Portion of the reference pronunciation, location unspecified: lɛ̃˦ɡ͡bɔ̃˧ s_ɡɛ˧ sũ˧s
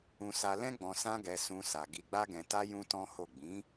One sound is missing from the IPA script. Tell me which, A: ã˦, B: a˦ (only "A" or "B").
A